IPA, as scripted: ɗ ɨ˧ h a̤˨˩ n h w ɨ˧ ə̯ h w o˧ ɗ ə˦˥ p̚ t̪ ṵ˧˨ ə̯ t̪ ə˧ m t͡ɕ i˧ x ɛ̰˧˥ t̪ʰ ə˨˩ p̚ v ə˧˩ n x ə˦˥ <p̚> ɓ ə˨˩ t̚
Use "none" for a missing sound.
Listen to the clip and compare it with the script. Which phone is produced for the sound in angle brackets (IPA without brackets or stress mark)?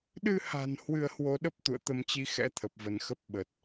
p̚